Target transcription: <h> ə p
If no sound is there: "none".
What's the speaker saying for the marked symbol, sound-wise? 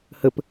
h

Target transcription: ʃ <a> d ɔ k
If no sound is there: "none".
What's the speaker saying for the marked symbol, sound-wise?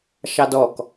ɑ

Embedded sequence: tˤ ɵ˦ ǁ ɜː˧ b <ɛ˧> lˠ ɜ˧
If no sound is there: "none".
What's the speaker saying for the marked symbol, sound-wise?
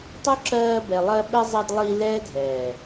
ɛ˨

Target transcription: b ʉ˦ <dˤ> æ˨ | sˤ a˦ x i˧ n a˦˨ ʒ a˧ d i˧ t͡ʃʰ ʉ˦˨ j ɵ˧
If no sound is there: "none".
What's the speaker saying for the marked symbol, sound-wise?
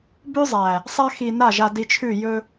zˤ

